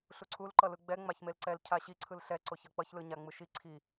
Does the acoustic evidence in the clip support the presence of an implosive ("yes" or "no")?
no